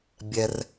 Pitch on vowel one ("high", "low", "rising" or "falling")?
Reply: high